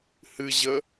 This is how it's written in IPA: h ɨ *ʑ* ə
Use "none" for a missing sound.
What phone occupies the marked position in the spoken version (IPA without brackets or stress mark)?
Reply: ʑ